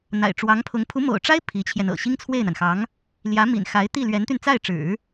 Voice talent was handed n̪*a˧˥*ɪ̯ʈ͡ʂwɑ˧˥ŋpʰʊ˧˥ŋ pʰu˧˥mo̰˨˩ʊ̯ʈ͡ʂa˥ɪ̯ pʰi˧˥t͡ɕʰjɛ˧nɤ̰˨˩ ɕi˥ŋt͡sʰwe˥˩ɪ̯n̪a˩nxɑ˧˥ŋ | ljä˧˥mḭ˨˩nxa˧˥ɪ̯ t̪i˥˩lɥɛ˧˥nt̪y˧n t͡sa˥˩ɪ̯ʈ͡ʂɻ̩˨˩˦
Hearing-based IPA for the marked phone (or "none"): a̰˨˩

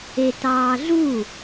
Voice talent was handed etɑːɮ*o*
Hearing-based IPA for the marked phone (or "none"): u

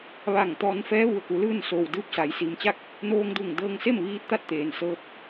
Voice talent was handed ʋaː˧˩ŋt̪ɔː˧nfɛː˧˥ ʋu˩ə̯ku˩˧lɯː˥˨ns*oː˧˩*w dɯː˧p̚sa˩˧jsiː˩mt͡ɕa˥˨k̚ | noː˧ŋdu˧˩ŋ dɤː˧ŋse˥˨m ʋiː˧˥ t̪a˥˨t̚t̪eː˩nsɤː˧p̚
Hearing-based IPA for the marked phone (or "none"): oː˩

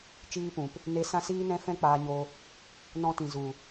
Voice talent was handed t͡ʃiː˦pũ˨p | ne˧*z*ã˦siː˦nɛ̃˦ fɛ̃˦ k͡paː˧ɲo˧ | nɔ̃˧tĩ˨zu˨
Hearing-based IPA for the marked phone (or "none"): s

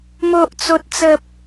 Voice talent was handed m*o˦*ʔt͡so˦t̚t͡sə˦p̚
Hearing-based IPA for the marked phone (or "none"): o˦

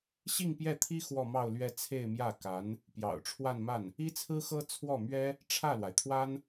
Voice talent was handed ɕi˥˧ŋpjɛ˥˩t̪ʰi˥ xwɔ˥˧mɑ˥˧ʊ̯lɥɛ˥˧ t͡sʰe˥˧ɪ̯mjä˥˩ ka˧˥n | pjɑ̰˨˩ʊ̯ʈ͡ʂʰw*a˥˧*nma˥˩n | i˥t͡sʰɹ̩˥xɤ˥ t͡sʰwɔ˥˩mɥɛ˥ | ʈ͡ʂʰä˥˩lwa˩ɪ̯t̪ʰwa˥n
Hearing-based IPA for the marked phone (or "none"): a˥˧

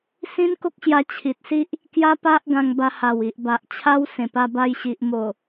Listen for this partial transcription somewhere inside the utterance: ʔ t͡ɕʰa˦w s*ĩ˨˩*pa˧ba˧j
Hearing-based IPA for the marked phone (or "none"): ẽ˨˩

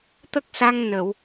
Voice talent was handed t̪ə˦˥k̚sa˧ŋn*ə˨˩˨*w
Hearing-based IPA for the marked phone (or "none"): ə˨˩˨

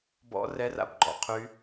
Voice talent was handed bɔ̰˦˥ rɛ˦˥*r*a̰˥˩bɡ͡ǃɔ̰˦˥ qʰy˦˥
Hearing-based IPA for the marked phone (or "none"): r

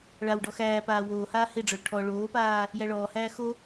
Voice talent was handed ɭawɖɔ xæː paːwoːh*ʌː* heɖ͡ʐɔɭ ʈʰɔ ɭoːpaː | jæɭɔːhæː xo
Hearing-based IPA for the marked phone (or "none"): aː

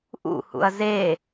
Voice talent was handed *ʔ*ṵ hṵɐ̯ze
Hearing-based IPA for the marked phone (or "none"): ʔ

